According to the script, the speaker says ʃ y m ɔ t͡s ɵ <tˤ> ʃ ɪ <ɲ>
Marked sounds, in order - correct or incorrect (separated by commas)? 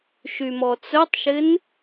correct, incorrect